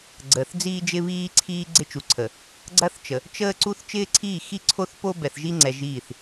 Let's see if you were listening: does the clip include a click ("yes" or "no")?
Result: yes